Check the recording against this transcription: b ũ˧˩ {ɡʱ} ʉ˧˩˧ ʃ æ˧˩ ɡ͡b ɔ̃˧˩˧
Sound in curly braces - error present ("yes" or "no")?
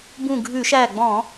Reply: no